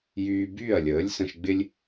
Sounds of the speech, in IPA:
jyː˧byː˥˩ɐ̯lʲəː˩˥lʲ sə̃˧ʃɡ͡bɪ˥lʲ

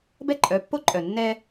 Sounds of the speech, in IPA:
bɛ˦ǃʼœ˩˥pːo˦ǃʼœ˨˩ nːɛ˦

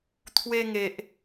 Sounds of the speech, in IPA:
t̪ʰwe˧ ŋe˨ʔ

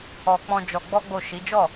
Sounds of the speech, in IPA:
ɔ˧ k͡pɔ̃˧ d͡ʒɔ˧ ɡ͡bɔ˦ɡ͡bo˦˨ ʃi˨˦d͡ʒɔ˦˨

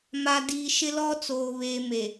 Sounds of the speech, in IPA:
ma˨diː˨ ʃɪ˦lɔ˦t͡soː˨ βeː˨me˨

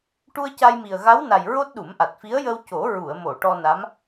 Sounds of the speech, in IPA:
ʈu˧ə̯ca˧jmi˨˩ə̯ ɣa˧˥wna˨˩j ɹo˦˥t̚ɗu˨˩˦mʔa˨˩t̚fi˧˥ə̯ jə˧wco˨˩˦ ɹu˨˩˨ə̯mo˨˩˨ ʈɔ˧ na˧˥m

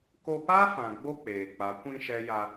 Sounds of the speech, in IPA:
ko˧pa˦fã˨ɡ͡bo˧ k͡peː˨k͡pa˨˦ kʷĩ˧ ʃɛ˦ ja˧

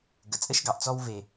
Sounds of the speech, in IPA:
ɡə˨t͡sʼə˦ʃɡɑ˨ʔ t͡sɔ˦w ve˨

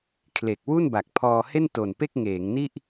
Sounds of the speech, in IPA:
kʰle˨˩k̚wu˥˩n ba˨˩k̚pʰɔː˧he˥˩n to˨˩npe˥˩k̚ŋeː˩˦ŋni˥˩ʔ

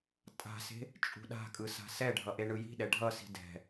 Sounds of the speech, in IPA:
tʼa̤se̤ | t͡ʃʼṳɗa̤kʼɯ sa̤sɛɖʱʌ ʔeɳɯji̤ɗɛ ɖʱʌsi̤ dɛ̤

